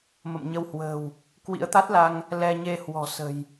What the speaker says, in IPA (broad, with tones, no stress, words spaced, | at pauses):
mə̰˧˨mɲə˧whwə̤ː˨˩w | kwḭ˧˥ə̯t̪a˦˥t̚la˧ŋ | lɛ˧ ɲe˧hwɔ̤˨˩ sə̤˨˩j